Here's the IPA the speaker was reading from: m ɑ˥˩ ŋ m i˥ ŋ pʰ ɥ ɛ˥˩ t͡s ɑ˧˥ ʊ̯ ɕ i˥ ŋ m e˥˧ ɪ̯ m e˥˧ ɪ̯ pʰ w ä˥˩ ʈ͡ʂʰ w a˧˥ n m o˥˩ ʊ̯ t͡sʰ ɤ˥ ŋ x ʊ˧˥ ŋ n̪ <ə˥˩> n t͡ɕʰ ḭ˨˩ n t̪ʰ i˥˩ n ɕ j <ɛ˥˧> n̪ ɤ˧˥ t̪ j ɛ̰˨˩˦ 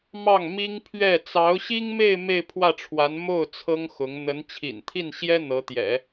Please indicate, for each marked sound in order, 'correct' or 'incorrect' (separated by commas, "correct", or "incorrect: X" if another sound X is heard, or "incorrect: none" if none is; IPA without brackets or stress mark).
incorrect: ə˧˥, incorrect: ɛ˥